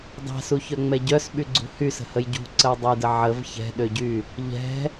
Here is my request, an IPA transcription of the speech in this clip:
dˤ ɛ̤ s u ç œ ŋ͡m ɛ ɟ œ s ɓ y ɡ͡ǀ ṳ h y s ə̤ h ə j ɟ ṳ ǀ ə w dˤ ə j d ə ʕ ə v ç ɛ̤ ɗ ø ɟ y | ʎ ɛ̤

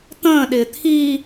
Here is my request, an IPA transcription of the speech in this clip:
t̪ ə̃ː ɗ ɪː t̪ʰ iː

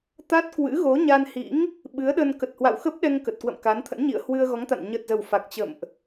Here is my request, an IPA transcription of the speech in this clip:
t̪ a˦˥ t̚ k w ɨ̰˧˥ ɣ o˨˦ ɲ a˧ n h ḭ˧˥ ŋ | ɓ ɨ˨˦ ə̯ ɗ ə˧ n k ə˨˩ t̚ h w a̰˧˨ w x ə˦˥ p̚ ɗ ɛ˧ ŋ k ə˨˩ t̚ k w ə̰˧˨ m k a˨˦ n t̪ʰ ə̰˧˥ n ɲ ḭ˧˨ ə̯ h w ɨ˧ ə̯ ɣ ɔ˨˦ ŋ t̪ a̰˧˨ n ɲ ə˨˩ t̚ z ə˨˩ w f a˨˩ k̚ t͡ɕ ə̰˧˨ m ʔ

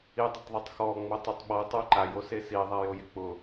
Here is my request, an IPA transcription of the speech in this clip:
i dˤ ɪ tˤ ðˤ u tˤ x ɔ ŋ͡m o tˤ ʊ tˤ ɓ ɔ tˤ u ǃ a j o s e s i ðˤ a j o j ɪ k͡p ʊ

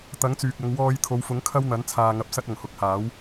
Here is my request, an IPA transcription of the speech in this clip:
t̪ ɐ˨˥ ŋ t͡s yː˨ k̚ ɐ˨˧ ŋ w ɔː˧ j t̪ʰ o˨˧ w f ʊ˨˥ ŋ kʰ ɐ˥ w n̪ ɐ˨˥ n t͡sʰ aː˧ ŋ ɐ˧ p̚ s ɐ˥ t̚ ɐ˨˩ ŋ h ʊ˨˥ k̚ h aː˨˥ w

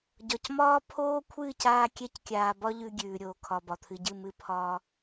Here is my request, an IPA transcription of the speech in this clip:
ɟ ɒ˨ c m ɒː˦ pʰ oː˦ kʷʰ ɨː˦˨ c aː˧ kʲ ɛ˧ c kʲ aː˨ b ɒ˦ ʎ ʉ˧ ɡʲ ʉː˨ ɾʲ oː˨ kʰ ɒ˨ b ɒ˨ t̪ʰ ɨ˨ ɟ ɨ˦˨ m ɨ˧ pʰ ɒː˧

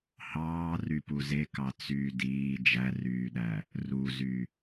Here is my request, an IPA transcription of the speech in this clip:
h ɑː r y p u z e k ɑ t͡s yː d iː d͡ʒ æ r yː ɗ æ | r u z y

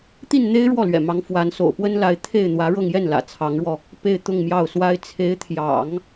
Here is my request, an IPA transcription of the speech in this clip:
t̪ i˥˩ n n̪ e˥ ɪ̯ ɻ w ɔ˥˩ l ɥ ɛ̰˨˩ m ɑ˧˥ ŋ f w a˧˥ n s o̰˨˩ ʊ̯ p w ə˥ n l a˧˥ ɪ̯ t̪ʰ e˥˩ ɪ̯ n̪ w ä˧˥ ɻ ɤ˥˧ ŋ j ɛ˥˩ n l ä̰˨˩ t͡sʰ ɑ˧˥ ŋ ɻ w ɔ˧ | p e˥˧ ɪ̯ t̪ ʊ˥˧ ŋ m j ɑ˥˩ ʊ̯ s w a˥ ɪ̯ t͡sʰ e˧˥ ɪ̯ t̪ʰ j ɑ̰˨˩˦ ŋ

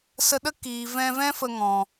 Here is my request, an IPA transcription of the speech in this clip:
s ə˧ ɗ ə˦ k iː˨ v ɛ̃˧ v ɛ̃˦ f ə˧ ŋ ɔ̃˨

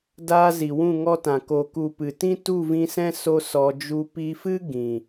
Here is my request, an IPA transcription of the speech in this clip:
d aː˧ z i˨ w ũ˦˨ ŋ ɔ˦ t ã˨ k o˨ k u˨ p ɨ˨ t ĩ˦ t u˦˨ v ĩ˧ s ɛ̃˦ s o˦ s ɔ˧ d͡ʒ u˦ p i˦ f ɨ˦ ɡ ĩ˨

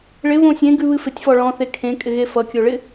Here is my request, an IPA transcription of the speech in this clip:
ɭ ɪ β õ sʲ ẽ ɡ ʉ β ɨ f ɪ tʲ f ɔ ɭ ɔ̃ θ e kʰ ẽ kʼ ɪ ɣ e f ʌ kʲ o ɭ ɪ

